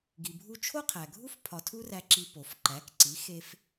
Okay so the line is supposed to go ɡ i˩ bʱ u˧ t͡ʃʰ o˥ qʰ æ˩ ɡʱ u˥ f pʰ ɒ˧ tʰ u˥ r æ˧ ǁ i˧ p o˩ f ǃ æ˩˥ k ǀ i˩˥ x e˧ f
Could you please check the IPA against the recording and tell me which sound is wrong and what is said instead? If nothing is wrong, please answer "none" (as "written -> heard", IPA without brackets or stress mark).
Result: none